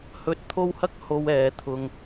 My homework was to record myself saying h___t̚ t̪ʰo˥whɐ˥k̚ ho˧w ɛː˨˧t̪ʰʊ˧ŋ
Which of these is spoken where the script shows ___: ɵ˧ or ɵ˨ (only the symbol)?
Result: ɵ˧